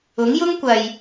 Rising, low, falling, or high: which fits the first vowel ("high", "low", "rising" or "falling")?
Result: rising